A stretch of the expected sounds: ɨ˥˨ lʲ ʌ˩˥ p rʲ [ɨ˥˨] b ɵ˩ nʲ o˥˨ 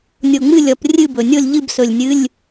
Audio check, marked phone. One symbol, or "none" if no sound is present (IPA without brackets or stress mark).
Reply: ɨ˥˨